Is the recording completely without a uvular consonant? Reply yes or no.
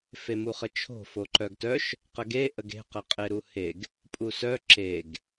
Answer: no